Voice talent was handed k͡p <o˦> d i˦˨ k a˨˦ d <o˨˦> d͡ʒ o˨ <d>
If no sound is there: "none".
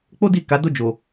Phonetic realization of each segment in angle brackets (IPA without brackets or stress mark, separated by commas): o˦, o˧, none